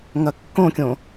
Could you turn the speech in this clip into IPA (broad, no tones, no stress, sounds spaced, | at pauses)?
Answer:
ŋ ɐ kː õ kʲ õ